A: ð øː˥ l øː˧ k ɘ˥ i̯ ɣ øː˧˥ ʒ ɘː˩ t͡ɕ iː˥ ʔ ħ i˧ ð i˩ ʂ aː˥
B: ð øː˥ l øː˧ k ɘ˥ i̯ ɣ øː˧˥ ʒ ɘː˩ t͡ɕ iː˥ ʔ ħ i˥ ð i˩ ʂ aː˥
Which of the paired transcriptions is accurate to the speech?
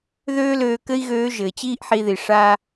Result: A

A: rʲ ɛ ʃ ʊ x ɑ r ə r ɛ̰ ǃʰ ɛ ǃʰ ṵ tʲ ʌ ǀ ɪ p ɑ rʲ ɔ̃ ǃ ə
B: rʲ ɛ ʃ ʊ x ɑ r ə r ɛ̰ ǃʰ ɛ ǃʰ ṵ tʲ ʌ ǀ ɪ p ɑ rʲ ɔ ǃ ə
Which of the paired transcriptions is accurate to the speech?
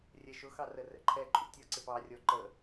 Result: B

